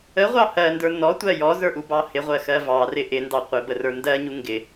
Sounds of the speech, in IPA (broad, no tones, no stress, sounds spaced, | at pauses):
ə ʁʷ ɑ h ɜ n d ə˞ n ɔ tʷ ɜ j ɔ z ə˞ ʔ u b ɑ h ɪ ʁʷ ɜ x ɜ v ɑ r ɪ ʔ ɪ n d ɑ qʷ ɪ b ə r ə˞ n d ɜ ɲ u ŋ ɡ ɪ